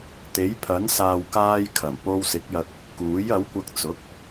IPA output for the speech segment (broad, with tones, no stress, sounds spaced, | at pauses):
t̪ e˨˥ j pʰ ɐ˨˥ n s aː˨ w k aː˧ j kʰ ɐ˨˩ m p o˧ w s ɪ˨˥ k̚ j ɐ˧ k̚ | k uː˨˥ j ɐ˨˥ w kʷ ɐ˧ k̚ t͡s ʊ˨˥ k̚